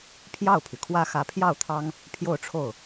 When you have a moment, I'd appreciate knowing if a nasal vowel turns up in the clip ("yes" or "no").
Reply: no